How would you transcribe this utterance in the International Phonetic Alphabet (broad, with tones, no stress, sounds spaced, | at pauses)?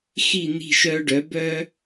x i˥˨ n̪ i̤˥˨ ʃ œ˦ ɖ œ˩˥ b œ˦